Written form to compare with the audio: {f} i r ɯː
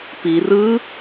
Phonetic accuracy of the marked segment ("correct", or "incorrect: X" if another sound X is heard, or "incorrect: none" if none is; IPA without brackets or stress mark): incorrect: p